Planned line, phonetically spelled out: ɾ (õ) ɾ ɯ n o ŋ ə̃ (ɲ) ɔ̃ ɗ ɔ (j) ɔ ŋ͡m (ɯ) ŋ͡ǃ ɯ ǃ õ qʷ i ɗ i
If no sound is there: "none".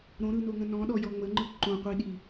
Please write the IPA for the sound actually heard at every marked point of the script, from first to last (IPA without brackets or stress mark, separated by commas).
õ, n, j, ə